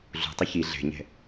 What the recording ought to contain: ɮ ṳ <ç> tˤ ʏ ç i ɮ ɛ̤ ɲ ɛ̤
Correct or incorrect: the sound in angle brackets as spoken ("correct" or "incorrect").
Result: incorrect